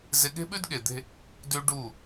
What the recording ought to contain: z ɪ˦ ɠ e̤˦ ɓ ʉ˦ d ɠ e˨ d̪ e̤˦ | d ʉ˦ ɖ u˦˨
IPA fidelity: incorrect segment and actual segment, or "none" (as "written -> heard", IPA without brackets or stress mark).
none